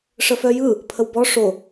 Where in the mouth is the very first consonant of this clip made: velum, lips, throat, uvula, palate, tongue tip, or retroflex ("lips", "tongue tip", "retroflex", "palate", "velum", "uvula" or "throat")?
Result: retroflex